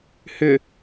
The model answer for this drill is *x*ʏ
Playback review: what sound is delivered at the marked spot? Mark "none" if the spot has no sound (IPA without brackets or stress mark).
h